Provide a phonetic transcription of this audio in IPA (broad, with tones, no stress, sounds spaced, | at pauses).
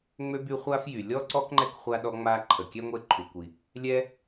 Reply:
ŋ͡m ø˥ b y˦ χʷ a˥ f j y˨ lʲ ɔ˥ ǀ ɔ˥ k ŋ͡ǃ ɛ˥ k χʷ a˦ ɗ ɔ˥ ŋ͡m a˥ ǃʰ ə˩ kʲ ɛ˥ ŋʷ e˦ ǃʰ u˩ kʷ i˩ | lʲ ɛ˥